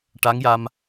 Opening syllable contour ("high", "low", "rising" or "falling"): rising